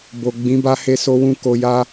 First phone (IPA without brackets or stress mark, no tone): b